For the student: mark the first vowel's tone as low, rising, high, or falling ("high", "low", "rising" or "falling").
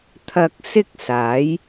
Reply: low